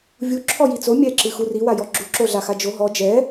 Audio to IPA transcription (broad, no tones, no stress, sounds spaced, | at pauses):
vʲ u ǁʰ ɔ j i t͡s o mʲ ɛ ǁ ɨ x u r i w a j ɔ ɡ͡ǁ u ǁ o ɮ a x a d͡ʒ o ɦ ɔ d͡ʒ ɛ